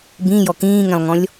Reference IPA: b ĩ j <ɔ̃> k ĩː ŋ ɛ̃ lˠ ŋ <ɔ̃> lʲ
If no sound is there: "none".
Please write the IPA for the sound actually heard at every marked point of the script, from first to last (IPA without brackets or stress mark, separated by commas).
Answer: ɔ, ɔ̃